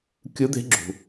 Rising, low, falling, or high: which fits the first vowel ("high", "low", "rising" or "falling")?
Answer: rising